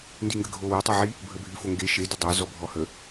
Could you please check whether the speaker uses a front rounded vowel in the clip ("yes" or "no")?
yes